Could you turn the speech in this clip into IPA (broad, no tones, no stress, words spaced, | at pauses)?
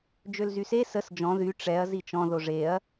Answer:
d͡ʒølzyse səs d͡ʒɔ̃ ðy ʈ͡ʂɛɐ̯ zit͡ʃɔ̃ ðoʐeɐ̯